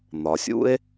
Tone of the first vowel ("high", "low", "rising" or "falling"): low